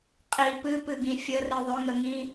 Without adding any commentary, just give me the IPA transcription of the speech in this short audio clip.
qʼ i p ɨ p ɨ ɡ ĩ fʲ ə r ɨ ðˤ ʏ ŋ ə ŋ ĩ

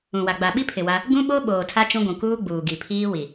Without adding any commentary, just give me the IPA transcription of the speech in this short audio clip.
ũ˨ w a˨ ɡ͡b a˨ ɓ i˦ pʰ ɪ˨ w a˦ | ɡ ũ˦ ɓ o˦ ɓ oː˨ tʰ a˦ t͡ʃ ũ˦ ɡʷ ũ˨ k uː˦ ɡ͡b uː˨ ɡ i˨ pʰ iː˦ w i˨

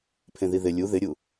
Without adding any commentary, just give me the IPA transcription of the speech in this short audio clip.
pʰ ẽ ð i ð ɪ lʲ u ð ɪ ɾʲ u

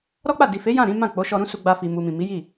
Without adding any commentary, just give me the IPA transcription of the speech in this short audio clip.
ɾ ɔ˦ k͡p a˦˨ d i˨ f e˨˦ j ã˦˨ ɾ ĩ˨˦ m ã˦˨ k͡p o˨˦ ʃ ɔ˧ ɾ ũ˦ s u˧ ɡ͡b a˧ f i˨ m u˨ m ĩ˨ m i˨˦ j i˦˨

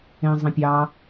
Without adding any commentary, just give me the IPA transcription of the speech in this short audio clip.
ẽ zˤ ẽ pʲ ɑ

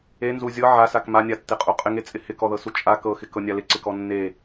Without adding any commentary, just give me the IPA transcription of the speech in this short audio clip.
e n z u zʲ ɤ ʕ a s a k m a nʲ a tː e qʼ u qʼ ɪ ŋ e t͡sʼ ɪ h ɪ k ɔ ð ɤ s u t͡ʃʼ a k ɤ x ɪ k ɤ nʲ a l ɪ ǀ ɪ k ɔ nː e

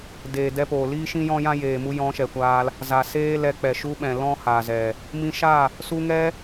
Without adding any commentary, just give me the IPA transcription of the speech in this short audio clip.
d eː˨ d ɛ˧ p oː˨ l iː˦ ʃ ĩ˦ j ɔ̃˦ j ã˦ j eː˨ m u˦ j ɔ̃˧ ʃ ɛ˨ kʷ aː˧ l | z a˨ s eː˦ l ɛ˧ k͡p ɛ˨ ʃ u˦ ɓ ɛ̃˨ l ɔ̃˦ h a˨ z ɛ˨ | m ĩ˧ ʃ a˦˨ | s u˧ ŋ ɛ˦

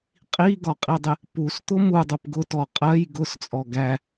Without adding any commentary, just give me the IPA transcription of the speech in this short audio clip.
qʼ i ɡ ɒ qʼ i dˤ ɪ | p u s t̪ ʊ m u dˤ ʊ p ɡ ʊ t ɔ qʼ ɜ j ɡ ʊ s t͡sʼ ɔ ɡ æ

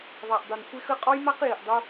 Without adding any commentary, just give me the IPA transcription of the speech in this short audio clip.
ðˤ a˨ ʔ dˤ u˨ n kʷ e˦ x ə˦ qʼ ɔ˦ j m a˦ q j i˨ ʔ dˤ o˦

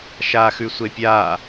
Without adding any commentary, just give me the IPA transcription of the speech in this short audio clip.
ʃ aː x ʉ sʷ e pʲ aː

